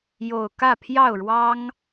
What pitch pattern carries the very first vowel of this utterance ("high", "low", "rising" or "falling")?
low